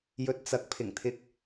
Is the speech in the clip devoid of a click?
yes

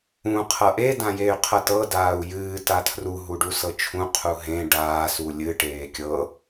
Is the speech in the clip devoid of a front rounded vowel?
no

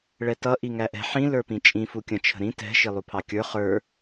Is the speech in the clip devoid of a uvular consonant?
no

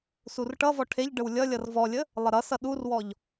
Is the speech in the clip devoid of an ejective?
yes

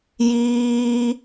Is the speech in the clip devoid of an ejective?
yes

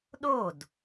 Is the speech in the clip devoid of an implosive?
no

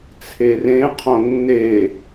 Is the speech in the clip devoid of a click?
yes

